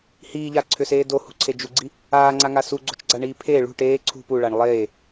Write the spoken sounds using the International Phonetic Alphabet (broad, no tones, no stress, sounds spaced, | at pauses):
h iː ʎ a ǀʰ ʏ s eː d o h ṳ ǀʰ e d͡ʒ u ɡ͡ǀ i | aː ŋ͡ǀ a ŋ a s u ɡ͡ǀ o̤ t͡ʃ ɡ͡ǀ a ɳ iː pʰ e ɭ ṳ ʈ eː ǀʰ ṳ p u ɭ a ɳ lˠ eː